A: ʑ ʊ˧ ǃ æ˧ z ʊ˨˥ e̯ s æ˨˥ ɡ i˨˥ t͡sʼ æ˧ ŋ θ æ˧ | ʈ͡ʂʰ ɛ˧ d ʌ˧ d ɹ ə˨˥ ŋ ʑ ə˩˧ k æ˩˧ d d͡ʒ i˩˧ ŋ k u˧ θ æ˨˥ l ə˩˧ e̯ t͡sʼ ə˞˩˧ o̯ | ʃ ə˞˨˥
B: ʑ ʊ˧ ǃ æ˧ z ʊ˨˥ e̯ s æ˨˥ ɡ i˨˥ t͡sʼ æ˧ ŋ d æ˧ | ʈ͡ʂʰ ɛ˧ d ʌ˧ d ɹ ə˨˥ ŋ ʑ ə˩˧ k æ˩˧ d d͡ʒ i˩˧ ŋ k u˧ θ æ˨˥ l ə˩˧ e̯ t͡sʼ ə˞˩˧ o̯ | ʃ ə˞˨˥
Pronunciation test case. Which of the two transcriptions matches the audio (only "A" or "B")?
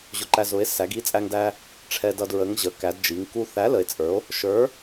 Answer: B